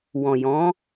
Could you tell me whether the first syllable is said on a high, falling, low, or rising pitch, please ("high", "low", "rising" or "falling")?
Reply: low